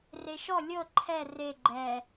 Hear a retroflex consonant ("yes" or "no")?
no